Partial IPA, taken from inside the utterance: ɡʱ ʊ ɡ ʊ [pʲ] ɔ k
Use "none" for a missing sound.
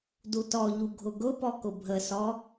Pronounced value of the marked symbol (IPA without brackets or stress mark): p